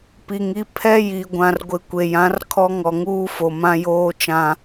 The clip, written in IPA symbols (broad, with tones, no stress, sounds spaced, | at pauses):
p i˨ ŋ i˦ pʰ ɛ˦ j i˨ ɡʷ ã˨ r ɡʷ ɪ˨ kʷ e˨ j ã˨˦ r kʰ ɔ˦ ŋ ɔ˨ ŋ uː˦ f o˨ m ã˦ j oː˦ t͡ʃ ã˦